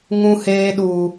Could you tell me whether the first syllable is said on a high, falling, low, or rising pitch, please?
high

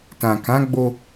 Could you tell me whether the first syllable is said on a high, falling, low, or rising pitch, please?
low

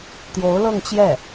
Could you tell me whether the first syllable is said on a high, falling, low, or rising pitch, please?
rising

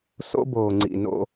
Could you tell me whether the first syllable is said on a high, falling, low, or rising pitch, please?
high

